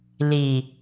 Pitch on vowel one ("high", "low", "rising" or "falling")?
low